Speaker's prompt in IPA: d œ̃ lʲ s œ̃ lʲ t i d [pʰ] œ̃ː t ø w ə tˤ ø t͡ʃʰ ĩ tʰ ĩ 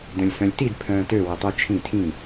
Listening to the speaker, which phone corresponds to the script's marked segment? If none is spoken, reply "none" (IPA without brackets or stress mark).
pʰ